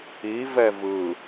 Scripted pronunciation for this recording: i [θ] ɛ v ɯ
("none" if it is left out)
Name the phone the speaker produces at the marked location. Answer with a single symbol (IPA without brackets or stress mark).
v